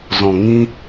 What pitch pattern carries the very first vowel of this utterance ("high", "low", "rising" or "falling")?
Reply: low